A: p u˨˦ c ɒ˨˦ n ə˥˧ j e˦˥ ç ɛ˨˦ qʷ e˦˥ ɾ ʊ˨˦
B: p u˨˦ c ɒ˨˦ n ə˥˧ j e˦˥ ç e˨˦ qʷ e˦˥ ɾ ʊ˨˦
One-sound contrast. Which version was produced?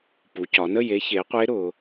B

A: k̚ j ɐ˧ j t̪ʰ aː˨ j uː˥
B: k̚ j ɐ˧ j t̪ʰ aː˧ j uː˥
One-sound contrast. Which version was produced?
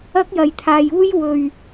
B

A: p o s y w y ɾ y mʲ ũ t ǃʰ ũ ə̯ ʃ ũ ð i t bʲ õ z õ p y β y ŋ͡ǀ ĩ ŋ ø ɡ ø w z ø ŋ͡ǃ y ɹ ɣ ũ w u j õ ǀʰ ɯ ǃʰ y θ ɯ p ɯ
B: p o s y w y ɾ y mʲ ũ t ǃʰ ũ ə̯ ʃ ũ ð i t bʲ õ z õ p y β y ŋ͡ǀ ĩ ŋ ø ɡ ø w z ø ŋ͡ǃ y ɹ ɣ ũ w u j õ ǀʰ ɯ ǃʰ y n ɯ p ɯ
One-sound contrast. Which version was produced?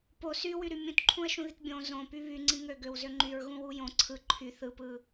A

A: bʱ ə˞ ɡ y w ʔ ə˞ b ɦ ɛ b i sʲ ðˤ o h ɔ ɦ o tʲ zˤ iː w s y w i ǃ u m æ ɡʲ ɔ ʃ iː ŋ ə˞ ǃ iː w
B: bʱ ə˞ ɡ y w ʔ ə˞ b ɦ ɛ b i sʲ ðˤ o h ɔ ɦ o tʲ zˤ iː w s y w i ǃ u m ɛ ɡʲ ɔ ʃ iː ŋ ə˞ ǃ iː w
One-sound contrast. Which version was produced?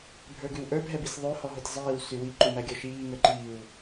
A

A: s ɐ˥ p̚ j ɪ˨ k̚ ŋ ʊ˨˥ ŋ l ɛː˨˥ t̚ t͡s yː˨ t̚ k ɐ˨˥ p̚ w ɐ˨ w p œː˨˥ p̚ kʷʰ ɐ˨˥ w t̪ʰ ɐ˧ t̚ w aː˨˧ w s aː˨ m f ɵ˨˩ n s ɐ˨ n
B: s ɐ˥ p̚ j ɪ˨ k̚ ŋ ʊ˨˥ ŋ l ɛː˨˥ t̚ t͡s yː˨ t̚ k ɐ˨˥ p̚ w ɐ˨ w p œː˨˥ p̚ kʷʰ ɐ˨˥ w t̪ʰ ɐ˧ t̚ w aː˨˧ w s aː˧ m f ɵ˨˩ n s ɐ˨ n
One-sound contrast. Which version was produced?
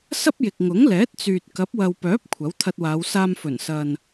B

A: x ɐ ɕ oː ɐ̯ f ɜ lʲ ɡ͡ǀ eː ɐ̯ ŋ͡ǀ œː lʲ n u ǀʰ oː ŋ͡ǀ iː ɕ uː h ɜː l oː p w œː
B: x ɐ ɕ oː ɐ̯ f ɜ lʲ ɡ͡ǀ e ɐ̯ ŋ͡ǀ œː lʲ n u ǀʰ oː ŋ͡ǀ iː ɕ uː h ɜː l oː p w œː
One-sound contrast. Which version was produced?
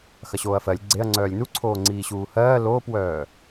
B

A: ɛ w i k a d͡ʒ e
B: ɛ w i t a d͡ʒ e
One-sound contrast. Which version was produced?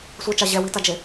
B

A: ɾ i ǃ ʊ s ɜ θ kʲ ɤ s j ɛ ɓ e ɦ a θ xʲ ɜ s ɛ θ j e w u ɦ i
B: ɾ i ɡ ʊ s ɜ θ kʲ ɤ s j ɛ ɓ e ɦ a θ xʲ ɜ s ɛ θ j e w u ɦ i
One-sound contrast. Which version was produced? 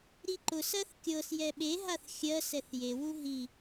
A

